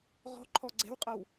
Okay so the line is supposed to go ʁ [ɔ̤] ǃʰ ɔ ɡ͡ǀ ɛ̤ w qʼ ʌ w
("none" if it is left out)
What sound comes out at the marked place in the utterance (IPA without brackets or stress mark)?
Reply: ɔ̤